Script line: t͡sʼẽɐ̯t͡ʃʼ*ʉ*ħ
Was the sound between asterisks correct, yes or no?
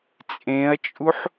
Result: no